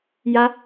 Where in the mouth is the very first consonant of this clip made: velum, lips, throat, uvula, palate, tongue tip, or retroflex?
palate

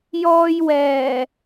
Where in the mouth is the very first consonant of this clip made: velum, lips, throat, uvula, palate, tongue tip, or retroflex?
palate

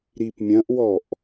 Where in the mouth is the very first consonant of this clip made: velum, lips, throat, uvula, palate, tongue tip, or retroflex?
tongue tip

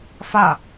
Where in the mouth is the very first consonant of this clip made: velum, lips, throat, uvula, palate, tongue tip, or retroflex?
lips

